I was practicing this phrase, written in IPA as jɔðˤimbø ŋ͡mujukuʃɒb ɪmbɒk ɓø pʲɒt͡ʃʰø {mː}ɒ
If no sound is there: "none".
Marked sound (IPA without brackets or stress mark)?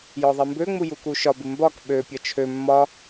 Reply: mː